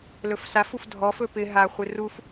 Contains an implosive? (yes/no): no